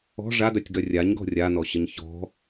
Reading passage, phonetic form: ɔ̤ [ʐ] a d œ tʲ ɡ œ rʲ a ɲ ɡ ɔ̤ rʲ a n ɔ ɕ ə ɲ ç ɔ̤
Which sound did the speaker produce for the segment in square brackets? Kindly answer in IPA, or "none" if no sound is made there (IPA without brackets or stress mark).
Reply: ʐ